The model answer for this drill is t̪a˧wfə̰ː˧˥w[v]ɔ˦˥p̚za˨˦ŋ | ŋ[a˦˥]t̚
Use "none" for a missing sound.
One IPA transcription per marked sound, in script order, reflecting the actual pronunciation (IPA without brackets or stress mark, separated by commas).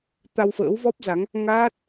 v, aː˦˥